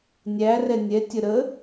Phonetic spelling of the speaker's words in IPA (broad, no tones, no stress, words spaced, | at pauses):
nʲæ rɛnʲɛ tʲəɾə